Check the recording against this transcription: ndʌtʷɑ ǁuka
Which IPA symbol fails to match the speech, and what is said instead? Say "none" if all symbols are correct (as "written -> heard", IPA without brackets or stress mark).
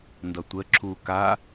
ɑ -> ə